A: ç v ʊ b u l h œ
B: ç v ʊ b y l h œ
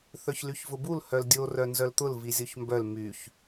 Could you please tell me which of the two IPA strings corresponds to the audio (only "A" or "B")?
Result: A